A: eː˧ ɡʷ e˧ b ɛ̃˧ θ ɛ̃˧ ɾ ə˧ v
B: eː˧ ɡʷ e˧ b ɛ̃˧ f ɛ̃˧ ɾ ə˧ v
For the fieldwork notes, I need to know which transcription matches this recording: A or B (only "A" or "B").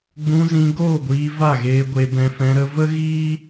B